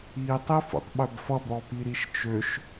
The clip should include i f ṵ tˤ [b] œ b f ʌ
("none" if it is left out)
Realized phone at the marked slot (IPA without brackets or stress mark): ɓ